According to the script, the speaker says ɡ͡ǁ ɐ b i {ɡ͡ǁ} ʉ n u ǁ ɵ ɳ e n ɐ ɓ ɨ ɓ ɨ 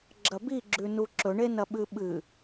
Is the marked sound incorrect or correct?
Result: correct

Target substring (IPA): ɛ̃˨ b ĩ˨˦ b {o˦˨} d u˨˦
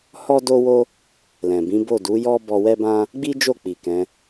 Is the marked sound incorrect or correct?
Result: correct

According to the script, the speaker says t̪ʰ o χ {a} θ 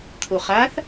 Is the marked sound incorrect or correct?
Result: correct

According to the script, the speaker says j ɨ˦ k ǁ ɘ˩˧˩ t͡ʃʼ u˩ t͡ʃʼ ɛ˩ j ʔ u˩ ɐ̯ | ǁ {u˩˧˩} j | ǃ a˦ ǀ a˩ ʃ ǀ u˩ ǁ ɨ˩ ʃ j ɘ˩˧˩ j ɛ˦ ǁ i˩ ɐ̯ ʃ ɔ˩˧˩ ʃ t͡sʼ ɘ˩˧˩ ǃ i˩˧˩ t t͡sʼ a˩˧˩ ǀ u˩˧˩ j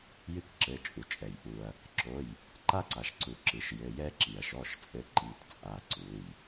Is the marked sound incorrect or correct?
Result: incorrect: o˩˧˩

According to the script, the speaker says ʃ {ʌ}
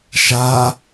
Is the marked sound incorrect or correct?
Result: incorrect: a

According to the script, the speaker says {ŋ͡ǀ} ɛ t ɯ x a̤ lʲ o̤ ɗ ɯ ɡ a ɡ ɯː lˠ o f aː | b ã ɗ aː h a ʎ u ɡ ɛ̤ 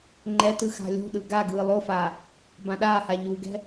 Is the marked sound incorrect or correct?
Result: incorrect: ŋ͡ǃ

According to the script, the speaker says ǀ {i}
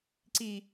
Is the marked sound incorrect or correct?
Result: correct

